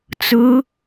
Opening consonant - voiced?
no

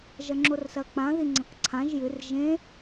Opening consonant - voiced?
yes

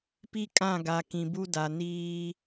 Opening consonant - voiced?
no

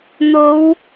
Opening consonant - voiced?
yes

